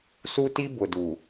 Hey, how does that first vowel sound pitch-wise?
high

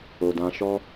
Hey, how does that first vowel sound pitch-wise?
low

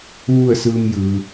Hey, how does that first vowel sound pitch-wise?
falling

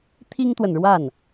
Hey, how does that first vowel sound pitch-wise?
high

